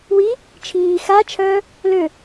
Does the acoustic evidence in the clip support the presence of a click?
no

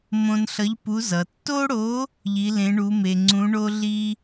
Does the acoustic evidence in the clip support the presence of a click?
yes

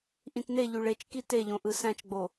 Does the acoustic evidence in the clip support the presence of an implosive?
no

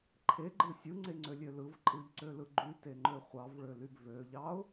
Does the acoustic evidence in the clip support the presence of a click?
yes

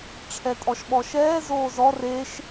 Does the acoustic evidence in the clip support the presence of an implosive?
yes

